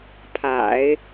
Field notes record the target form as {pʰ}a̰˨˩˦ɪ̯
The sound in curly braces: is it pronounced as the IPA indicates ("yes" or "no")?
yes